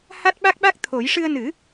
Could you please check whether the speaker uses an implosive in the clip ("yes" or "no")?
yes